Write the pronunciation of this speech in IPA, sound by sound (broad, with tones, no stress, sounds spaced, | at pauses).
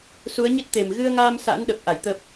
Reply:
s u˨˦ ə̯ ɲ i˦˥ t̚ t̪ e˨˩ m ɣ ɨ˧ ə̯ ŋ aː˧ m s a̰ː˧˥ n ɗ ə˨˩ p̚ ʔ a˧˩ j t̪ ə˨˩ p̚